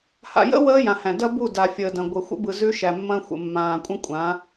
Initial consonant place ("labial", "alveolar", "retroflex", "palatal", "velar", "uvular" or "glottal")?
glottal